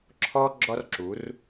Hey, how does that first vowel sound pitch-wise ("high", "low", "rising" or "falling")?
high